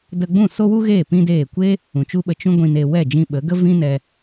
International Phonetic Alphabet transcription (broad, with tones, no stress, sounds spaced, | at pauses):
d ə˧ ɡ͡b ũ˦˨ s o˦ w u˦ ɣ eː˦˨ p ĩ˦ d eː˦˨ kʷ e˦ | ũ˨ t͡ʃ u˦ ɓ ə˧ t͡ʃ ũ˦ ɡʷ ĩ˧ n e˧ w ɛ˦˨ d͡ʒ ĩ˧ ɓ ə˨˦ ɡ ə˦ v ĩ˦ n ɛ˧